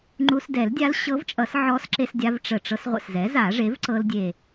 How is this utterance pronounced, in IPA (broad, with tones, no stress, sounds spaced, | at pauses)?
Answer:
ŋ͡ǃ u˧ s d ɛ˨˩˦ l dʲ a˧˥ l ɕ ɤ˧˥ v t͡ʃʼ ʌ˨˩˦ s ʕ ɔ˧˥ s ǁ e˧ s dʲ a˧ v ʈ͡ʂ ə˨˩ ʈ͡ʂ ɤ˧ s ʁʷ ə̰˨˩ s z ɛ˩˥ z a˨˩˦ ʐ e˩˥ v ǀ ɤ˧ l dʲ e˨˩